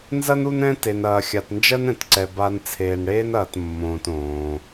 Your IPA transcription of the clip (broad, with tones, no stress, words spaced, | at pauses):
nzɐ˥nu˦n ɛ̃˥ te˨nɐː˨ xʲa˨tnd͡ʒɜ˥n ɛ̃˩tǀɛ˨ ba˨n t͡sʰeː˨nɽeː˦nɐː˨t mːõː˨t õː˩